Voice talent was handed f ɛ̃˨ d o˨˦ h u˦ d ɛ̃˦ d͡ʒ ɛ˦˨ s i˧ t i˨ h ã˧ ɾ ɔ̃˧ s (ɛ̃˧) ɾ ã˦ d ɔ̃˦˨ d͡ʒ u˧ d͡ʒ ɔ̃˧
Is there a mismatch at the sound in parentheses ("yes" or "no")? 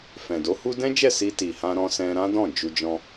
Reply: no